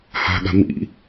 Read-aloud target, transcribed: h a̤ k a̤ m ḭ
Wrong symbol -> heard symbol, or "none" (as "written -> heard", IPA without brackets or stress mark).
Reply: k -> ɠ